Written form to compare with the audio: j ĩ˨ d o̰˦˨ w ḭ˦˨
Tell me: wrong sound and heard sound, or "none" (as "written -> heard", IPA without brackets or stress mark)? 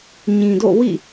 j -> ɲ